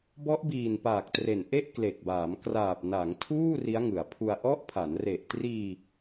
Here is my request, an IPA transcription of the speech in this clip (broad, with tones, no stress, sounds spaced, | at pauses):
b ɔ˦˥ ʔ b iː˨˩ n p aː˨˩ k̚ t r e˨˩ n ʔ e˥˩ ʔ k l e˨˩ k̚ b aː˩˦ m k r aː˨˩ p̚ n a˩˦ ŋ tʰ uː˥˩ r i˦˥ a̯ ŋ ɯ˩˦ a̯ pʰ u˧ a̯ ʔ ɔ˦˥ ʔ pʰ a˩˦ n r e˨˩ ʔ t r iː˧